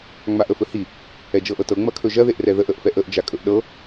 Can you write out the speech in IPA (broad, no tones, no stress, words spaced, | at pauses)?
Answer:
ŋ͡maʔəfɵhi | ɛd͡ʒɤʔɤtɤ ŋ͡mɐkʰɵʒɐ ðeʔrɛðəʔ əʔfɛʔəʔ d͡ʒakʼɵʔɗɤ